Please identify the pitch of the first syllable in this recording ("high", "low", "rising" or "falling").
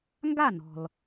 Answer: falling